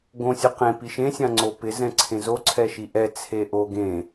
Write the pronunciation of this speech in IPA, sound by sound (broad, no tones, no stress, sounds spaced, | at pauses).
ɡ õ sʲ ʊ q ẽ p i ʃ ẽ sʲ ã ŋ͡ǀ o p ɪ z ɛ̃ ǀʰ ẽ z o ǀʰ ɛ ʃ i ʔ ɛ t͡sʰ e ʔ o ɡ ẽ